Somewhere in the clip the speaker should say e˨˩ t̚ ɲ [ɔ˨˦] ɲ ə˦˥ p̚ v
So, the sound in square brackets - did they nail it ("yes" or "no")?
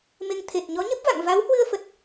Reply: yes